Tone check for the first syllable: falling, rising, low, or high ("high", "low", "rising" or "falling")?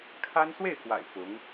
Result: high